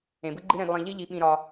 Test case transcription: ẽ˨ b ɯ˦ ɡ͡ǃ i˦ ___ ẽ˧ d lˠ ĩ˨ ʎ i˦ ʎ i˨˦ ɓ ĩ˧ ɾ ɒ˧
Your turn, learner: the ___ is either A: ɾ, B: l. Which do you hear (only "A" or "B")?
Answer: A